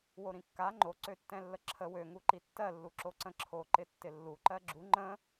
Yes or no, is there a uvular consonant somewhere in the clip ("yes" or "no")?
no